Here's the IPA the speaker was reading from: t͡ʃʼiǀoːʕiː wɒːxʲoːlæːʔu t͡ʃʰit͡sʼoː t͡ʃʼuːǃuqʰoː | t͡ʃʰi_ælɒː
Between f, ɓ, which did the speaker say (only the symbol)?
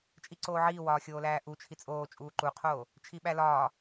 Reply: ɓ